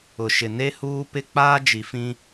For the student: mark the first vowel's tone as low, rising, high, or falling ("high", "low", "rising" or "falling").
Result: low